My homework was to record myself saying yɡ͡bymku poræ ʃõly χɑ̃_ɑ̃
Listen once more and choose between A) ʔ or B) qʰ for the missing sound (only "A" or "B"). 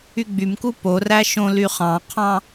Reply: B